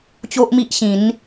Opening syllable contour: high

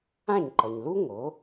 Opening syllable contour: falling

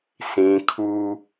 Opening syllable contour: high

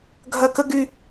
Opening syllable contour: high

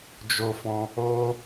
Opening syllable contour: high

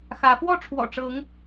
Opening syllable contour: rising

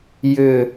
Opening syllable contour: falling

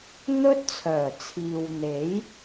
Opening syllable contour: high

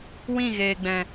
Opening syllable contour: falling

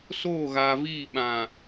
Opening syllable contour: falling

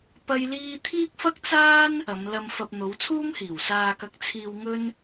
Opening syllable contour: high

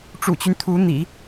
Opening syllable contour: low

